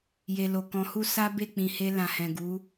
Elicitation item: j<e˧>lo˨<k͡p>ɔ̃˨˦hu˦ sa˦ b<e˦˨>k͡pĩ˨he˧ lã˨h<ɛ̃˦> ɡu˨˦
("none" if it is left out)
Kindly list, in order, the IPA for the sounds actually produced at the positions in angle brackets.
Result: e˨, k, e˦˨, ɛ̃˨

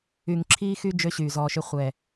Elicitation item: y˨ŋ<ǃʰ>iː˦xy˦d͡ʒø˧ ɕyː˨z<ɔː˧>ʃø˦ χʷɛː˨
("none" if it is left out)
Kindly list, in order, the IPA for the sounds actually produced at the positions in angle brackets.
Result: ǁʰ, ɔː˧

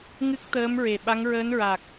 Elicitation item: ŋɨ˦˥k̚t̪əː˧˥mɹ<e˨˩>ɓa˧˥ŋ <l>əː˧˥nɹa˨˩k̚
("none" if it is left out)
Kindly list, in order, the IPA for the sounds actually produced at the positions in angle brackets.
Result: e˨˩, ɹ

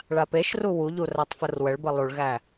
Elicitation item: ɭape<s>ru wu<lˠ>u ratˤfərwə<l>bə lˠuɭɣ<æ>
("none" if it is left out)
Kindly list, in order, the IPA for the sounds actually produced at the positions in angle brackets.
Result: ʃ, ʎ, ɭ, æ

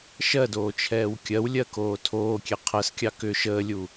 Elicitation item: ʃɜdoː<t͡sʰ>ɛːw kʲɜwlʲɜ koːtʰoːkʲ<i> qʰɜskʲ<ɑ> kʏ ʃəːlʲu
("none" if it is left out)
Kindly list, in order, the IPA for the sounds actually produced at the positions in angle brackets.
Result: t͡ʃʰ, e, ɑ

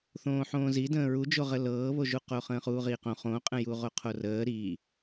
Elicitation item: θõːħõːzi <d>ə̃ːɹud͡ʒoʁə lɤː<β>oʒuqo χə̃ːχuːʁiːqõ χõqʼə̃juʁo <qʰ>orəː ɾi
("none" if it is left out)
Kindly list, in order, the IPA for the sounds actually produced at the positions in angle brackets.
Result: d, β, qʰ

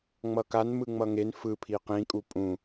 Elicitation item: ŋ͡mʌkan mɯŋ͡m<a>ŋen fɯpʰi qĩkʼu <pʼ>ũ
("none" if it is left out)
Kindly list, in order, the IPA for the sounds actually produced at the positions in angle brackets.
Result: ʌ, pʼ

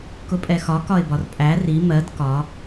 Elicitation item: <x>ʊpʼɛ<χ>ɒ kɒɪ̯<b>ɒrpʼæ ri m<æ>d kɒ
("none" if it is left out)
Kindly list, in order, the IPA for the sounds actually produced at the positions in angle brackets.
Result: k, x, b, ɜ

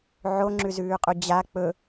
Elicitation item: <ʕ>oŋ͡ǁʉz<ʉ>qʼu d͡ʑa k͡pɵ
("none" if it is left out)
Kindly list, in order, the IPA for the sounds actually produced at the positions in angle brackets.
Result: ʕ, ʉː

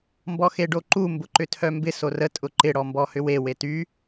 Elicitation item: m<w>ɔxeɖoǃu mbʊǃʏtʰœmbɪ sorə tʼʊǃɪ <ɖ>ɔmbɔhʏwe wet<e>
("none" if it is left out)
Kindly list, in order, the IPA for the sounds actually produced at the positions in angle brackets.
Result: b, ɽ, y

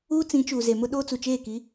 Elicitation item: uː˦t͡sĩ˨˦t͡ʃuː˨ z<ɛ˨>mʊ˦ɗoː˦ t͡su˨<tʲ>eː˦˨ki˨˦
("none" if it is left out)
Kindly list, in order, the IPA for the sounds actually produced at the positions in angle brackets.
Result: e˨, t͡ʃ

